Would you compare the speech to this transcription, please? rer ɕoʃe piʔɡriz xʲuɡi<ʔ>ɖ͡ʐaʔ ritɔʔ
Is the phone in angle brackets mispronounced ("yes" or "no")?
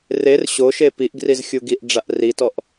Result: no